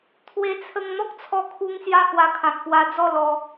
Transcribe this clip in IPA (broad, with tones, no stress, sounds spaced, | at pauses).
t̪ʰ w e˧ t͡sʰ ə˧ ŋ n̪ ɔ˦ k̚ t͡sʰ ɔ˧ kʰ u˧ ŋ s j a˦ h w a˧ kʰ ã˨ k̚ p w a˧ d͡z ɔ˥˧ l ɔ˧